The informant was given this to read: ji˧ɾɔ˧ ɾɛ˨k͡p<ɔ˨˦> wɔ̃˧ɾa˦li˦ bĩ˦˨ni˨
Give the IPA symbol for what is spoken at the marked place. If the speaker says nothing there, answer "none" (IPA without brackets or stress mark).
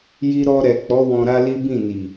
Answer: ɔ˨˦